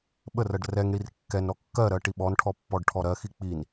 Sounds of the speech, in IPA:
ɓ ə r ɜ ɖ r ɛ ŋ ɽ i r kː ɛ n ɾ ɔ kː ɜ ɾ ɜ ʈ i ɓ ɔ n ʈʰ ɔ pː ɔ ɖ ʈʰ ɔ ɾ ɜ x i k͡p i n

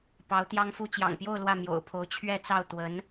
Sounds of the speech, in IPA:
p ɑ˧˥ ʊ̯ t̪ j ɑ˥ ŋ f u˥ t͡ɕ j ɑ̰˨˩ ŋ p j o˥˧ ʊ̯ l w ä˥˩ m j o̰˨˩ ʊ̯ pʰ o˧˥ ʊ̯ t͡ɕʰ ɥ ɛ˥˧ t͡s ɑ˥˩ ʊ̯ t̪ w ə˧˥ n

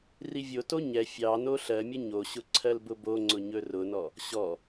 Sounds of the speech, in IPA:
r i vʲ o t o ɲ ɛ fʲ ɑ n o ɬ ɜ mʲ ə ɲ o ɕ ʊ ǀʰ ɜ l b ʊ b o ŋ͡ǀ ʊ ɲ ɵ r ʊ n ɔ | ɕ ɔ

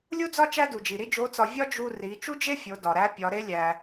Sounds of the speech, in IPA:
lʲ u˥ d͡z ɒ˥ t͡ʃ æ˥ d u˩ d͡ʒ i˩ ɾ i˥ d͡ʒ o˧˥ t͡s ɒ˧ vʲ ɒ˥ d͡ʒ u˧ r i˩˧ t͡ʃ u˥ d͡ʒ e˥ fʲ o˩˧ d ɒ˩ ɾ æ˧˥ pʲ ɒ˩˧ ɾ e˧˥ lʲ æ˩

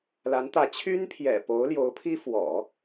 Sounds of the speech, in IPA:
l a˧˥ n t̪ ä˧˥ t͡ɕʰ y˥ n pʰ j ɛ̰˨˩ p o˧˥ ʊ̯ l j o˧˥ ʊ̯ pʰ i˥ f w ɔ̰˨˩˦

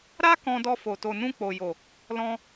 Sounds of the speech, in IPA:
ɾ a˦ k ɔ̃˧ d ɔ˧ f o˨ t o˨ n ũ˧ k͡p o˨ j o˨ | l ɔ̃˧

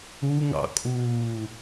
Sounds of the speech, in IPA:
u ŋ ɑ̰ kʼ uː

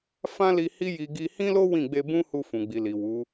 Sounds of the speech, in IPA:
f ã˦ l i˧ h i˦ j i˧ ɡ i˧ h ĩ˦ l o˦ w ĩ˦˨ ɡ͡b e˧ b ũ˦ h u˧ f ũ˨ ɡ͡b i˨ l i˨ w u˨˦

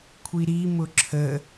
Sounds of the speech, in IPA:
kʷʰ i ɾ i m ʊ ǁʰ ə

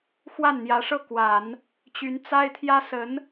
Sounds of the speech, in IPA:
x w a˥˩ n n̪ j ä˧˥ ʂ ɤ˥˩ k w a˨˩˦ n | t͡ɕ y˧˥ n t͡s a˥ ɪ̯ t̪ʰ j ä˥ s ə˧˥ n

